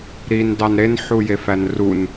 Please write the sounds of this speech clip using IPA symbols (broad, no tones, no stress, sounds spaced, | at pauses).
ɾ i n d ɑ n ɾ e n ħ u j e f æ n r u n